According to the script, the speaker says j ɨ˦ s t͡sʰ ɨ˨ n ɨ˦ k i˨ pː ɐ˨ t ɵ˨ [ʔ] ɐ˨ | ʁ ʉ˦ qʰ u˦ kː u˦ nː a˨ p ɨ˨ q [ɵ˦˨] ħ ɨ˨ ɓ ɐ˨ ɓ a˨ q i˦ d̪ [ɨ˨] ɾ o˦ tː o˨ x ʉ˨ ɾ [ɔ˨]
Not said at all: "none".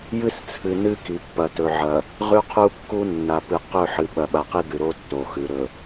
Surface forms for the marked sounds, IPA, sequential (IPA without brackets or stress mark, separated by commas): ʕ, ɵ˦˨, ɨ˨, ɵ˨